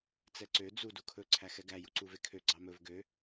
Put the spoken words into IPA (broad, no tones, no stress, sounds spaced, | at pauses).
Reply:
t͡s ɛ ǀ ø d͡z u d u kʰ ɵ ǀʰ æ x ɛ ɡ æ j u ǀ u v e kʰ ø ɡ͡ǀ ɑ m ɵ v ɡ ø